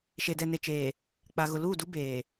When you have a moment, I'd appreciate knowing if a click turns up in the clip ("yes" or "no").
no